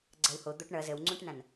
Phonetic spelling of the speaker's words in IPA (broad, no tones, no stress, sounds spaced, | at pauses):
ɡ͡ǀ ɐ w h o d̪ o ʈ ɳ ʌ z ə w ŋ͡ǀ ũ ʈ n ã n